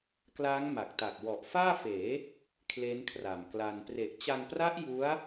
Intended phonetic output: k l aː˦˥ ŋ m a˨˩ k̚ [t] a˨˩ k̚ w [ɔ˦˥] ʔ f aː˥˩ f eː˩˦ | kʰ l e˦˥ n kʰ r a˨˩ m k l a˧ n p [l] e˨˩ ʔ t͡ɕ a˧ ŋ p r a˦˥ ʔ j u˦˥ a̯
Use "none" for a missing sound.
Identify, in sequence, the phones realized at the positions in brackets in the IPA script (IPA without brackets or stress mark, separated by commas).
t, ɔ˨˩, r